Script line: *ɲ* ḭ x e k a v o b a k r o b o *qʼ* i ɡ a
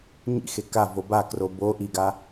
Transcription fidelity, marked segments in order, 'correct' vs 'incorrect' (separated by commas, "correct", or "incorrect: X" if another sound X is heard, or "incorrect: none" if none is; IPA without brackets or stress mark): correct, incorrect: ʔ